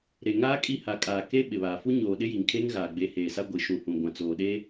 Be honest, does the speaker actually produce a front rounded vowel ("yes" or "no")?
no